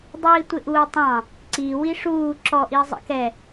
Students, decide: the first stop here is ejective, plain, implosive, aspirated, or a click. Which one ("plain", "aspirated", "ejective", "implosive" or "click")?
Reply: plain